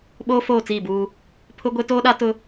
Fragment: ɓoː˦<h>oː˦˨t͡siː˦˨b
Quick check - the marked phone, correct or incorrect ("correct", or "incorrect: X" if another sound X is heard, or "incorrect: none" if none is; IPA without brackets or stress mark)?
incorrect: f